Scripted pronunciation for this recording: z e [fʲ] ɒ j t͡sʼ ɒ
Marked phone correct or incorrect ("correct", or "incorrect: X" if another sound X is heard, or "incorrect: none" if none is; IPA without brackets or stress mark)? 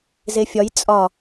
correct